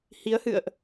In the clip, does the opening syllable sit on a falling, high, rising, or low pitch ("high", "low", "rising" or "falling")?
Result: rising